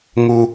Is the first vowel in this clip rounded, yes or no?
yes